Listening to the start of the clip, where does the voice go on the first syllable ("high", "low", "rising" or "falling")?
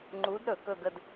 rising